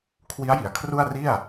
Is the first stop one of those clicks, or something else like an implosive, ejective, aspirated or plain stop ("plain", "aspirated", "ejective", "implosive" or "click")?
aspirated